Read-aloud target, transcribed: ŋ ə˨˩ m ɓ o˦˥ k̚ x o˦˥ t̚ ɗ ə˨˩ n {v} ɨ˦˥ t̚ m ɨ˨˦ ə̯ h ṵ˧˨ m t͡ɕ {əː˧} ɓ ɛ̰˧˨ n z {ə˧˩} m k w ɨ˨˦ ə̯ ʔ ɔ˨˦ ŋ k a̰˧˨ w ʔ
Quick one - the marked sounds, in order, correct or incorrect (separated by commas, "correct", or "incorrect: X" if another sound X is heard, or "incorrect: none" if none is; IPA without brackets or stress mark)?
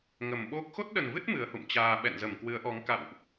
correct, incorrect: aː˧, correct